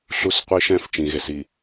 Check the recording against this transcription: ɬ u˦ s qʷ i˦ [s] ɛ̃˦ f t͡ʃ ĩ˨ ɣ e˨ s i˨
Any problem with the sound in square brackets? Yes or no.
yes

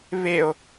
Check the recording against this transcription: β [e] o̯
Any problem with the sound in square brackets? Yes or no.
no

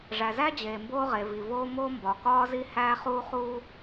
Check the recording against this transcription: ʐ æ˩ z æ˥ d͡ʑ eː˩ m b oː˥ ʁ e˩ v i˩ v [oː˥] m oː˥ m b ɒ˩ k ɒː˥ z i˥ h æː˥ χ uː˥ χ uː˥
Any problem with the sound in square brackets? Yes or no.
no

